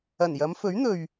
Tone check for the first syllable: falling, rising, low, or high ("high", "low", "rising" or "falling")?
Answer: low